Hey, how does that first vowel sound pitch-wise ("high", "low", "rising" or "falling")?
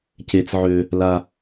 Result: high